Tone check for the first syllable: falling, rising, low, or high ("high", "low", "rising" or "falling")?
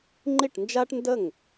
falling